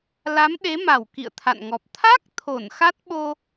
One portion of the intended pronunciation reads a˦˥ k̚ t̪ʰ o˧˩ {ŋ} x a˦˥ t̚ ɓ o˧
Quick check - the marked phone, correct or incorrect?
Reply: incorrect